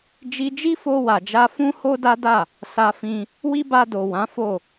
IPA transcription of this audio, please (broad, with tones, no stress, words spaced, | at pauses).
d͡ʒi˧d͡ʒi˦fo˧ wa˨d͡ʒa˧fũ˦ ho˦da˦da˦˨ | sa˧fĩ˧ | wi˦ba˧do˨ wã˨˦fo˦˨